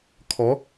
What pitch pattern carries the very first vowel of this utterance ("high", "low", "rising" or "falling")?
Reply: rising